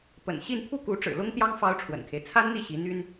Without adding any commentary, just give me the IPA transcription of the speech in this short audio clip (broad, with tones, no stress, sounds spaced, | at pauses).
p ə̰˨˩ n ɕ i˥˧ n pʰ u˥˩ k u˧˥ ʈ͡ʂ ɻ̩˨˩ l ʊ˥ ŋ t̪ j ɑ˥ ŋ f ɑ˥ ʊ̯ ʈ͡ʂʰ w ə̰˨˩ n kʰ e˦ ɪ̯ t͡sʰ a˥ n n̪ i˥˩ ɕ i˧˥ n̪ y˥ n